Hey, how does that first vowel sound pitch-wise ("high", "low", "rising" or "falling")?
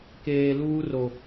low